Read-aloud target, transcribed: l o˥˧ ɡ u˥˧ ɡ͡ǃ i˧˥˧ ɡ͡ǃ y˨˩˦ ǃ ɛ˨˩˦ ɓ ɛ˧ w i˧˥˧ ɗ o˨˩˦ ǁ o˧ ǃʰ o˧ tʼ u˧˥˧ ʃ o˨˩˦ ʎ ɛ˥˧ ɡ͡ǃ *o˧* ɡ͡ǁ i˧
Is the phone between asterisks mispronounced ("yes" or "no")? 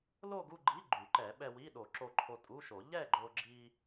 no